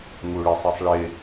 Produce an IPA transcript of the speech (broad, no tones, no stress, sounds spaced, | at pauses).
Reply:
ŋ u ɭ ɪ sˤ i sˤ ɭ ɪ